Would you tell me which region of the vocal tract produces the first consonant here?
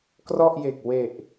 velum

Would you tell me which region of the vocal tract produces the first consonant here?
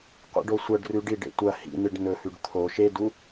uvula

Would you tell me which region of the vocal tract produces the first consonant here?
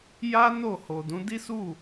palate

